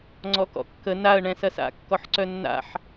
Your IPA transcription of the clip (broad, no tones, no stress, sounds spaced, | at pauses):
ŋ͡ǀ ɔ k ɔ̰ kː ə n a ə̯ ɳ ɛ̃ s ɐ s a̰ kː ɔ ħ ǀ œ nː a̰ ħ